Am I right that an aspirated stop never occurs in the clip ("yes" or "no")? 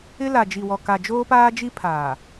no